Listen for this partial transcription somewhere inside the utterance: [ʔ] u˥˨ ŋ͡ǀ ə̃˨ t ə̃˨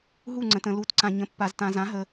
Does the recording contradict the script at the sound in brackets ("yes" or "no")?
yes